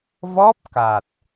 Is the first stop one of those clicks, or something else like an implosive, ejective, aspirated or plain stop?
plain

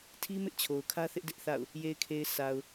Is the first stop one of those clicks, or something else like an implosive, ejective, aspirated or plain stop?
aspirated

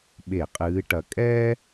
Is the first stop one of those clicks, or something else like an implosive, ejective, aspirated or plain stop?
implosive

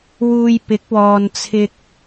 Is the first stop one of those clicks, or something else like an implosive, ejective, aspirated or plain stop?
plain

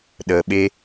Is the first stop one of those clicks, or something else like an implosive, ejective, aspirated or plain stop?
implosive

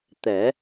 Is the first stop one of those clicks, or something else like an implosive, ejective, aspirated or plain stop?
plain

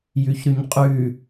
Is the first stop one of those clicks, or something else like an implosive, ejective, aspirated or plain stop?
ejective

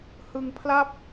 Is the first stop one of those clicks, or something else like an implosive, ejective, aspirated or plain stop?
aspirated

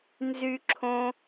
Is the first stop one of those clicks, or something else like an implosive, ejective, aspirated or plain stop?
click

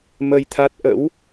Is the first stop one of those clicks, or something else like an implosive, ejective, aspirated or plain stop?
aspirated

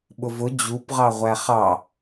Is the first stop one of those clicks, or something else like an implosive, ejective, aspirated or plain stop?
implosive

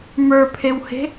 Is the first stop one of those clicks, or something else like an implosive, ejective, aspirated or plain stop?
aspirated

